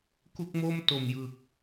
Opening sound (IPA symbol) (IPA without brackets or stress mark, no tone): k